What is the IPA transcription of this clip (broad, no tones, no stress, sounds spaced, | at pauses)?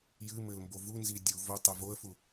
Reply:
j ɨ m ɘ l m b o v u n z i dʲ u v o tˤ ɛ v o ə̯ f u